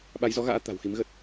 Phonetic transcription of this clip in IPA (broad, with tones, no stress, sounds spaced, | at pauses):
ɓ a˨˦ j z ɔ˨˦ ɣ a̰ː˧˥ t̪ a̤˨˩ w x i˨˦ m ɣ ə˦˥ t̚